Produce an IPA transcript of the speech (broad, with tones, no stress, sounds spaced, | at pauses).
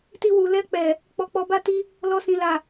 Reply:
t i˧ w u˨ l ɛ˧ k͡p ɛ˨ | k͡p ɔ˧ k͡p ɔ˧ b a˦ t i˦ | l ɔ˧ s ĩ˨ l a˨